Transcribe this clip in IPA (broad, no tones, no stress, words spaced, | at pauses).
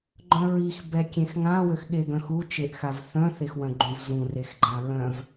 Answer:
ɡ͡ǃœ̃ɹix bɛkʲẽxŋã wøxɠeɡœ̃xu t͡ʃeʔxavθœ̃ θexwœ̃ɡ͡ǃũvzũ rexɡ͡ǃãɹœ̃v